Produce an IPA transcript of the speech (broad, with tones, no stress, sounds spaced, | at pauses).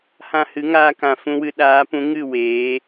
h ã˧ h ɨ˨˦ ŋ aː˧ k ã˨ f ũ˧ w ɨ˧ ɗ aː˨˦ p ũ˨˦ ŋ ɨ˦˨ w eː˨˦